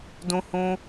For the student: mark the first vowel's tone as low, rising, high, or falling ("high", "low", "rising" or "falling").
high